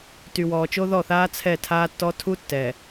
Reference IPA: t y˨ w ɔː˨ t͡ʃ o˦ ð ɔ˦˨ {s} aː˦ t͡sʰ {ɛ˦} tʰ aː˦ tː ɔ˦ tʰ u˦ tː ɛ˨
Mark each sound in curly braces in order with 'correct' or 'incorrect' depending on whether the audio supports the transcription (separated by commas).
incorrect, incorrect